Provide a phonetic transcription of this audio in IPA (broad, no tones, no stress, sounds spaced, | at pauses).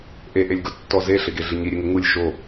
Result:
ʔ e ʔ e lʲ ɡ ʊ tː ɔ z e ɬ ɪ ɡ e ɮ ɪ ɲ i ɾʲ e ŋ ɪ ŋ u lʲ ʃ o